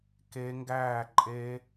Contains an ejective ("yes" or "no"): yes